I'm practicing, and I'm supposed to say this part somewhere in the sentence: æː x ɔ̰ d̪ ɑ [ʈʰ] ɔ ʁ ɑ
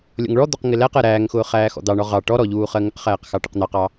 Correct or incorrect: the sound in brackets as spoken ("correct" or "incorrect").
incorrect